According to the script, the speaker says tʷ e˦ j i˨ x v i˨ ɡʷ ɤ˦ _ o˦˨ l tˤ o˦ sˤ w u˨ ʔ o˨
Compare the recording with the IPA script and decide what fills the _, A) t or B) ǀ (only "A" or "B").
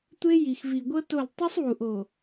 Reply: A